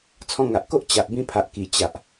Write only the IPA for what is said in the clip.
t͡sʰ ɔ̃˧ ŋ a˨ ʔ k o˦ ʔ t͡ɕ a˨ ʔ b ĩ˧ pʰ a˨ ʔ k i˨˩ t͡ɕ a˨ ʔ

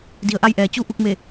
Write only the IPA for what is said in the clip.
d i˩˧ ə̯ ʔ a˧ j ʔ ɛː˩˧ t͡ɕ u˧˥ ʔ u˧ k̚ m e˧˩

